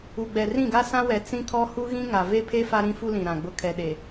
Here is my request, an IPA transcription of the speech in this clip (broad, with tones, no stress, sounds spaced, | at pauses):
u˨ ɡ͡b ɛ˨ r ĩ˦˨ ɡ a˦ s ã˦ w ɛ˨ t͡s ĩ˦ kʰ ɔ˦ h u˦ ɣ ĩ˦ ŋ a˨ v e˦ pʰ e˦ f a˦ ɾ ĩ˦ f u˦ l ĩ˨ ɾ ã˨ ɡ͡b ʊ˦ kʰ ɛ˨ ɗ e˨